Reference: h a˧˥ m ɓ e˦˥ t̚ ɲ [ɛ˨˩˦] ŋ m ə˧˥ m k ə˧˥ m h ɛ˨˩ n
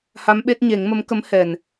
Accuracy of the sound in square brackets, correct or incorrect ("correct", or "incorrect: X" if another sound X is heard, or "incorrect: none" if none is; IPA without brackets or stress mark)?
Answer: incorrect: e˨˩˦